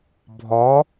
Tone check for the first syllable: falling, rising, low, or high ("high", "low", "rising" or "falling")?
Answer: rising